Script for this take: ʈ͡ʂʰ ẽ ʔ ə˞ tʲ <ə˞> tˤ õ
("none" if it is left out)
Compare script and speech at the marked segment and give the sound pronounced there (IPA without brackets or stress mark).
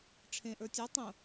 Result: ɜ